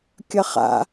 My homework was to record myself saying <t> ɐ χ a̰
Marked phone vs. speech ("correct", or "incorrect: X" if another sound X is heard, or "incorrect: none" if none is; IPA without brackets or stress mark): incorrect: kʲ